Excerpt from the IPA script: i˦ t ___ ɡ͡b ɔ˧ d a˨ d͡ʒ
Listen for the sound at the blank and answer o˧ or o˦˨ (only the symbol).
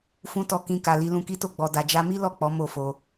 o˦˨